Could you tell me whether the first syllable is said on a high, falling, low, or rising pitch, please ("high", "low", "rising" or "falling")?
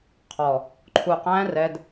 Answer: low